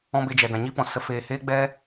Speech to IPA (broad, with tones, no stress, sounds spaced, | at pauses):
ɔ̃˦ b e˧ d͡ʒ ɛ˨ d ã˨ ɲ i˦ p ɔ̃˨ s ə˦ f eː˧ h eː˦ ɡ͡b ɛ˦